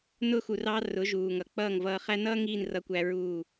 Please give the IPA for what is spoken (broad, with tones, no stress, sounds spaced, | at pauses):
n ʊ˧ x u˨ r ɑ˧ r ʊ˨˦ ʒ uː˨ ŋ ʌ˨ k͡p ʌː˦˨ ŋ v ʌː˧ χ æ˦ n ʌː˦ ŋ iː˦˨ n r ʌ˧ kʷ æ˧ ɹ uː˦˨